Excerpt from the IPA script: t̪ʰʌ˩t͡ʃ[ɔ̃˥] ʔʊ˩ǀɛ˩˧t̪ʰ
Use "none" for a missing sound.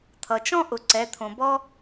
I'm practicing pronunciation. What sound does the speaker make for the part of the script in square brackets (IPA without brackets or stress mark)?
ɔ̃˥